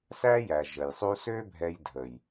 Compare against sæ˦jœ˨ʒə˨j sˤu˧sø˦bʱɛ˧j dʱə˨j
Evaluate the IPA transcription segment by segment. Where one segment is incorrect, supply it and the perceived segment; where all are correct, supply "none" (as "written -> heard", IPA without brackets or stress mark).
œ˨ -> æ˨